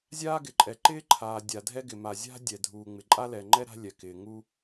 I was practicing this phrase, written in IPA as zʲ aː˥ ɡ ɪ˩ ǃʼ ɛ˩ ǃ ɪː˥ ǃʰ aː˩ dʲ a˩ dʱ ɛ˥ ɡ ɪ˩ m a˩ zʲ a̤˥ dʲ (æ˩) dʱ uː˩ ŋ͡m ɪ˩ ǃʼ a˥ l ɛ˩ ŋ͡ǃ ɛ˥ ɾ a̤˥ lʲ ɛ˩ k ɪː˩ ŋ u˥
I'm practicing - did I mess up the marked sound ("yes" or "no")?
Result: yes